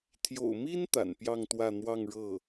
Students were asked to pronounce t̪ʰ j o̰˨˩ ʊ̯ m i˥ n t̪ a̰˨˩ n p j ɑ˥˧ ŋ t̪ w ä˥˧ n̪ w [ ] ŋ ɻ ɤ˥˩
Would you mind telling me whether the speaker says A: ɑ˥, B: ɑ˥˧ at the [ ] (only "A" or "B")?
B